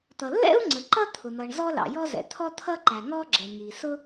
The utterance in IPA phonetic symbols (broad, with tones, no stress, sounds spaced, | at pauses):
t̪ ʌ˩ lː ɛ̰˥ u̯ ŋ͡ǀ ə˩ ǃ ʌ˥ t̪ʰ ʊ˩ n̪ ʌ˩ ɳ z ɔ˥ l ɑ̰˩ j ɔ˥ z ɛ̰˩ t̪ʰ ɔ˥ t̪ʰ ʌ˥ ǃ æ˩ ŋ ɔ˥ ɡ͡ǁ ɛ˩ ŋ i˩ s ʊ˥